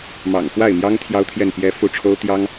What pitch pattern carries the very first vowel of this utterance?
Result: low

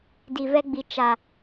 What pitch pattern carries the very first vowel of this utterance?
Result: low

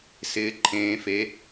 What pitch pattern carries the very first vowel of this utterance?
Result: rising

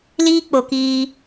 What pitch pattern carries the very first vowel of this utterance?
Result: high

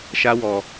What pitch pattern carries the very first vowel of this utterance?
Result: high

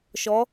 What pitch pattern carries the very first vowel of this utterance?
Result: rising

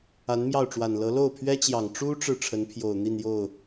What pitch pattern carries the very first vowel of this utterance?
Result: rising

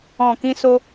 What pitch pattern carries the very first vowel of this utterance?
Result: low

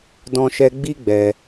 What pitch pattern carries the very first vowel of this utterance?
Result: high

